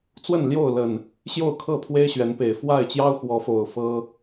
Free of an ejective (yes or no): yes